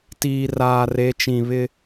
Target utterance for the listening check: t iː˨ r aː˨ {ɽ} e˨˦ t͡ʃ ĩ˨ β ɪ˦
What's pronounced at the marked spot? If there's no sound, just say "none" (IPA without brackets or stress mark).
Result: r